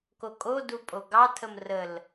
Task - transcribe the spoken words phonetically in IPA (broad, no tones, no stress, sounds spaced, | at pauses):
k o kʼ o d u pʼ o ɡ ɑ tʰ ə m r ə l